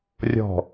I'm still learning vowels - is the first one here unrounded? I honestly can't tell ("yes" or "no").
no